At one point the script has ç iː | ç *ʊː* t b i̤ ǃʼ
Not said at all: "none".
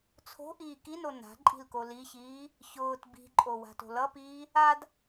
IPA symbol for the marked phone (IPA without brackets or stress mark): ʊː